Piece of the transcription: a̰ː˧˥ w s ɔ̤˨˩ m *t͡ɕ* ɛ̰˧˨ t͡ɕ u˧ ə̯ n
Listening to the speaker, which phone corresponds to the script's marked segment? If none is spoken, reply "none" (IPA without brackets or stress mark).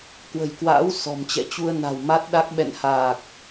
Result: t͡ɕ